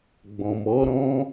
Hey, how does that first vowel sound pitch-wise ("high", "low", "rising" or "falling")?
low